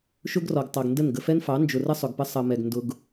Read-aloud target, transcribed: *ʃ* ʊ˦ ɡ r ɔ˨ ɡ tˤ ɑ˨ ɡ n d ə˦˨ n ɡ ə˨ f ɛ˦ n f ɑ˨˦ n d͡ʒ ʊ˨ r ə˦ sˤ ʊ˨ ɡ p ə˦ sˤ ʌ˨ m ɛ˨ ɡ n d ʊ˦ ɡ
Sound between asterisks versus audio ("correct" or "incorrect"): correct